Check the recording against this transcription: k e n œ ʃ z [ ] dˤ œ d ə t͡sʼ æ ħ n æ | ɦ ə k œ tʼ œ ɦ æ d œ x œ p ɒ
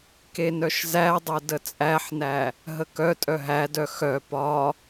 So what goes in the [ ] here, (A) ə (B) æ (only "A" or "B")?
B